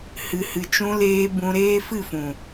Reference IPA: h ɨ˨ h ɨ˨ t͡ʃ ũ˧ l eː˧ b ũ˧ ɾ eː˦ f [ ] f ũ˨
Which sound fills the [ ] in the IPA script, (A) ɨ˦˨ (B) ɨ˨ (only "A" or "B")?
A